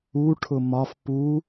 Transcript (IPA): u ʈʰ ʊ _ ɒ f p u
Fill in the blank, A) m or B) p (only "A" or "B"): A